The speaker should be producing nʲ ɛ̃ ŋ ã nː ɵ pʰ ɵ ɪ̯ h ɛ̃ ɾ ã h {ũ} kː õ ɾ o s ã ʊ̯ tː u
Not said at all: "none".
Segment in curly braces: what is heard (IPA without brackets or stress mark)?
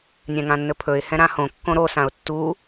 õ